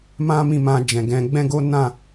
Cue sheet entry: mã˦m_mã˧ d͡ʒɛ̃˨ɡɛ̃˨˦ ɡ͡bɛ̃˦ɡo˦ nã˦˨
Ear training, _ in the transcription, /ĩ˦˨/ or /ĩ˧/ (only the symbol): ĩ˦˨